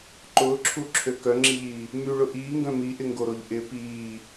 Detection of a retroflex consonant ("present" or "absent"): present